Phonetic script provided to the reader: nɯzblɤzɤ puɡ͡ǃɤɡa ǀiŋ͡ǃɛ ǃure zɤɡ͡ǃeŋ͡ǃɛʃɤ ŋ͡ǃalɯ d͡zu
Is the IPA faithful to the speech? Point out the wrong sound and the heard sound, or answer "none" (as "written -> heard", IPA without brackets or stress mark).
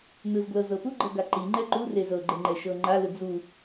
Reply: ǀ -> ǃ